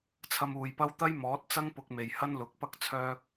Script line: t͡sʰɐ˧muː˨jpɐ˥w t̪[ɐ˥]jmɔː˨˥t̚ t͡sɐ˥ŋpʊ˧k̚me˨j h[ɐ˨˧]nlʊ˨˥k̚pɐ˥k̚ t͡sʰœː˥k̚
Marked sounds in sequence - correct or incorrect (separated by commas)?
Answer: correct, incorrect